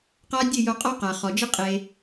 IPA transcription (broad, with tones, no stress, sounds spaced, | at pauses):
q a˦ dʲ ɨ˦˨ j o˧ qʼ ɔ˦ q a˨ χ ɔ˨ d͡ʒ ɨ˦ qʼ e˧